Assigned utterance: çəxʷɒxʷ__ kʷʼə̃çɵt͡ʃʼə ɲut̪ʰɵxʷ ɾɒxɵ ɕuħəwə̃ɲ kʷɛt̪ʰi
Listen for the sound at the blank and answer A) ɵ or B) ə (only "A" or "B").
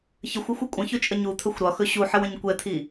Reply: B